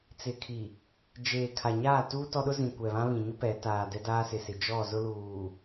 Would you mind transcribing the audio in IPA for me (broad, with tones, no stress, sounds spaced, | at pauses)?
t͡s ɪ˨ kʰ i˨ | d͡ʒ eː˨ kʰ a˨ ɲ aː˦˨ t uː˦ t ɔ˦ ɗ ʊ˦ z ĩ˨ kʷ ɛ˨ β ã˦ β ĩ˨ ɲ ʊ˦ p ɛ˨˦ t aː˨ d ɛ˦ d aː˦ s ɪ˨ s ɪ˨ d͡ʒ ɔ˦˨ z ʊ˦ l uː˨